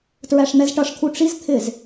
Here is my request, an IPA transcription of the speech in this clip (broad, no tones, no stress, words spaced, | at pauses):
tɹæʂn̪ɛzʈʌʂt̪ʰu ʈ͡ʂizt̪ʰɪz